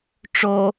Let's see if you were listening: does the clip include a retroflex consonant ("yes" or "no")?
yes